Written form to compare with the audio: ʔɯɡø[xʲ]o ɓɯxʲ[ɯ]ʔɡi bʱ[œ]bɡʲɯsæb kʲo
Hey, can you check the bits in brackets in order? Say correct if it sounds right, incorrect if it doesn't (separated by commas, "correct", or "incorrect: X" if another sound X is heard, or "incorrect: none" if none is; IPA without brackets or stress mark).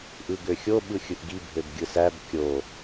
correct, correct, incorrect: ø